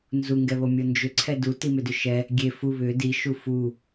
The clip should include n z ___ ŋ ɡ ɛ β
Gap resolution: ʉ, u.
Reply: u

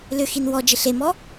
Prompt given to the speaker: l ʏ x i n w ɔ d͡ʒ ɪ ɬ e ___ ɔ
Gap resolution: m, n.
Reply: m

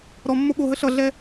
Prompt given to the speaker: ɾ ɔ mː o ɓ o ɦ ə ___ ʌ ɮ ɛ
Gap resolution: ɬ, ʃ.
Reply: ɬ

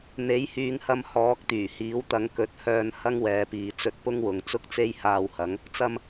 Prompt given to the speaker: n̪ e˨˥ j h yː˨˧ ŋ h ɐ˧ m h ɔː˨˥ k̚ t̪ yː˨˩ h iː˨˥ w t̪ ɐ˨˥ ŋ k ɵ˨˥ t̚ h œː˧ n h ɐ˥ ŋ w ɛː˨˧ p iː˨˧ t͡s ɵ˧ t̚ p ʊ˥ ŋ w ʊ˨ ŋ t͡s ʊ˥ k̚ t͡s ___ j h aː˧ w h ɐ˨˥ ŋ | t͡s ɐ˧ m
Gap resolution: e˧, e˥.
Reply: e˥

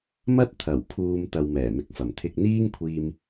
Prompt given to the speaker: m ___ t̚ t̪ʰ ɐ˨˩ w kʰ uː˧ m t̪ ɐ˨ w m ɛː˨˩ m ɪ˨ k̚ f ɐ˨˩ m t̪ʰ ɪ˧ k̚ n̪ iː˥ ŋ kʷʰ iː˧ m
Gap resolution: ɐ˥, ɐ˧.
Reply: ɐ˥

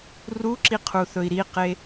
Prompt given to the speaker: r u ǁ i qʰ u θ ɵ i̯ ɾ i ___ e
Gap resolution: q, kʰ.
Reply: q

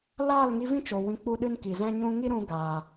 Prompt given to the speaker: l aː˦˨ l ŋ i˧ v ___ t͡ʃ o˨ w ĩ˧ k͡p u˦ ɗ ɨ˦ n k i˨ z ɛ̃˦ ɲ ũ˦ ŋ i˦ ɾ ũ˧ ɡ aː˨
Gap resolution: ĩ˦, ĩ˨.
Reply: ĩ˦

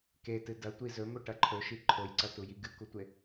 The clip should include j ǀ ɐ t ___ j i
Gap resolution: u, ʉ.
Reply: u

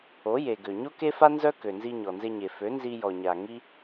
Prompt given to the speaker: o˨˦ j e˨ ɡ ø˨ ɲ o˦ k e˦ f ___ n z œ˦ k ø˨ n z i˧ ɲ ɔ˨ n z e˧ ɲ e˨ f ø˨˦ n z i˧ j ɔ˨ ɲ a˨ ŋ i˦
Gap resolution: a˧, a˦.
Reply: a˦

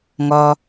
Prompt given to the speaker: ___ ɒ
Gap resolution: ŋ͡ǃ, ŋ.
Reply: ŋ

